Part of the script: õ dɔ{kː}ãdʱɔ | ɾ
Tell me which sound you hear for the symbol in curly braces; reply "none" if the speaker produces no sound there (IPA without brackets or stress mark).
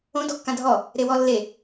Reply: kː